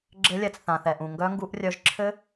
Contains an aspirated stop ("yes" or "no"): yes